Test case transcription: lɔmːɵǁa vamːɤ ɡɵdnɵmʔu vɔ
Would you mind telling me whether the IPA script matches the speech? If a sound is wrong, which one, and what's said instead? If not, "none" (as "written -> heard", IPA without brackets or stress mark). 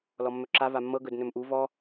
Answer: none